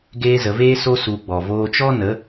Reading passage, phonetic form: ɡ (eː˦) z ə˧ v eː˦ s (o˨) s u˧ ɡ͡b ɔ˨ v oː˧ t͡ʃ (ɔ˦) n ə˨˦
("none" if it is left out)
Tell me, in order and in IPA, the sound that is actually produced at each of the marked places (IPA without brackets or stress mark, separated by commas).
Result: eː˦, o˦, ɔ˦